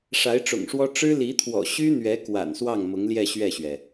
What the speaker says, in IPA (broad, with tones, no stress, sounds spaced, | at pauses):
ʂ a˧˥ ɪ̯ ʈ͡ʂ ʊ̰˨˩ ŋ ʂ w ɔ˥ ʈ͡ʂ ɻ̩˥ l i˧˥ t̪ʰ w ɔ̰˨˩ ɕ y˥ n̪ ɥ ɛ˧˥ k w a̰˨˩ n s w ɑ˥˩ ŋ m ʊ˧˥ ŋ l j ɛ˥˧ ɕ ɥ ɛ˥˩ ɕ ɥ ɛ˩